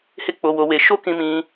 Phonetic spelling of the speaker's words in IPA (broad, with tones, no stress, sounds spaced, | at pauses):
h e˦ k͡p o˧ w o˧ w e˧ ʃ o˦ k ĩ˧ m ĩ˧